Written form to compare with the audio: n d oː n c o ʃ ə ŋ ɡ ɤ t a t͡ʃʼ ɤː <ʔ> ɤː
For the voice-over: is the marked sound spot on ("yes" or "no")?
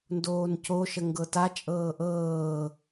yes